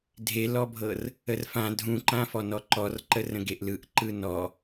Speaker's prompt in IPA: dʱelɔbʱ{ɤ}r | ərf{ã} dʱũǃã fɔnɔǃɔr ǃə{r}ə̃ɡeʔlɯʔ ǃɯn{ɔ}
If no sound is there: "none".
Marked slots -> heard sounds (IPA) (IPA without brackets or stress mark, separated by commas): ɤ, ã, r, ɔ